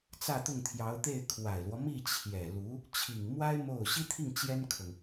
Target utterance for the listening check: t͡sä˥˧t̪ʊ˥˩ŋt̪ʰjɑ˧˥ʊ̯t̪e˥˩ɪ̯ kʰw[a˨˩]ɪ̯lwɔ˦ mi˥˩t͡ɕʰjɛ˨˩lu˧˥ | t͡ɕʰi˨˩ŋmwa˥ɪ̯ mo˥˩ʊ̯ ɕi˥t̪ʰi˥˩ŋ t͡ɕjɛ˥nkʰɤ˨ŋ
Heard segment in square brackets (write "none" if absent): a˨˩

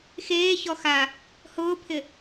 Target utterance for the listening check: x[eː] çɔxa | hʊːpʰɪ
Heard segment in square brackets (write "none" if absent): eː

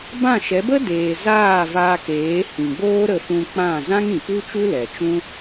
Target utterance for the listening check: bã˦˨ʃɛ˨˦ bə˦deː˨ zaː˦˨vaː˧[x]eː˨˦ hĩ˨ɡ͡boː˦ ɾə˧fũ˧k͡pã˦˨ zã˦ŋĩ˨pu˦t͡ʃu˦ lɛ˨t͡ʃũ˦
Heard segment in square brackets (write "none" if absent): k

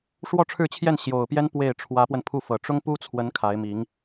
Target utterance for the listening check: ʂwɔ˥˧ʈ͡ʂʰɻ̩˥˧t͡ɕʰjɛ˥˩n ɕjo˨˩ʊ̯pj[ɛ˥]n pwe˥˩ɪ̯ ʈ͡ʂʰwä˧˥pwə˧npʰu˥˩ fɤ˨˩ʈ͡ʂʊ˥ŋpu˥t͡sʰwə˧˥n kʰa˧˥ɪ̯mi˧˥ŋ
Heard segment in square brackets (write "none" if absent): ɛ˥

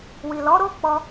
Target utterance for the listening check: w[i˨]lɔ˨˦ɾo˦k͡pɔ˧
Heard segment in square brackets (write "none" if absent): i˨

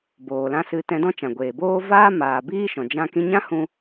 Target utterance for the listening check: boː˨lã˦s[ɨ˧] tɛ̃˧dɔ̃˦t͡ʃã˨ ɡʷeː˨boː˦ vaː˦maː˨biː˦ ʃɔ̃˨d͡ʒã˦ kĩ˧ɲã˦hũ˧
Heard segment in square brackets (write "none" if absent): ɨ˧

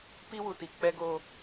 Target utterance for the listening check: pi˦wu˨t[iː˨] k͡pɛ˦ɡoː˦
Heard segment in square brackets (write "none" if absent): i˨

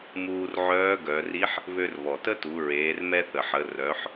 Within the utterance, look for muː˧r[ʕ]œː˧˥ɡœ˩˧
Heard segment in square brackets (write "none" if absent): ʕ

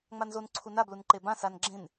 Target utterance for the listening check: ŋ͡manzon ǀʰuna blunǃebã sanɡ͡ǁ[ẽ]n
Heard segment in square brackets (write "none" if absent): ẽ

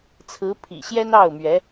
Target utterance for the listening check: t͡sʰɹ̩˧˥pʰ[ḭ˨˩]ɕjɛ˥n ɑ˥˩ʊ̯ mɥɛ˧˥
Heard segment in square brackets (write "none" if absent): ḭ˨˩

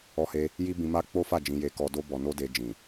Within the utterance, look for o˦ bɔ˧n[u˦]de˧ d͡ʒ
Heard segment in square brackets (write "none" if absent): o˦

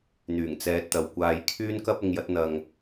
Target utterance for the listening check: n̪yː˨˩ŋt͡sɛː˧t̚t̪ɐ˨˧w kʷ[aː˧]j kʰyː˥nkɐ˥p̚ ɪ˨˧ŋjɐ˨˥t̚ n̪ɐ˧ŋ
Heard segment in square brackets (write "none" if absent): aː˧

